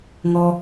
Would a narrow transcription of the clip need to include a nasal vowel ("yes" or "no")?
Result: no